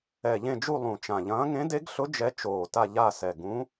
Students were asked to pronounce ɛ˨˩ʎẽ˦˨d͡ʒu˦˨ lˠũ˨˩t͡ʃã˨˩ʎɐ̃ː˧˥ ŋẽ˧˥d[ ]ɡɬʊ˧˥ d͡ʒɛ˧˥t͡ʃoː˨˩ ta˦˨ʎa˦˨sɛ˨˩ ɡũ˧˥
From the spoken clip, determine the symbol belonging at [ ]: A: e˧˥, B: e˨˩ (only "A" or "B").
A